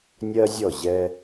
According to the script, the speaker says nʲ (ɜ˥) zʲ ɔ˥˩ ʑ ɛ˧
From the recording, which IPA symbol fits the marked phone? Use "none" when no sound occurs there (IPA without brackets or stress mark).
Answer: ɜ˥